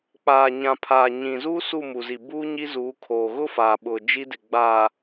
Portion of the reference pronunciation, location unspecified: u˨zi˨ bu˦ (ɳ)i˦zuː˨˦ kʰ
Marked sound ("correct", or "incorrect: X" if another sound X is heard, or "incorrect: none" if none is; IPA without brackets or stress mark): incorrect: ɲ